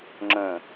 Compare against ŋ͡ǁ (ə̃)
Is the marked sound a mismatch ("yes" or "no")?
no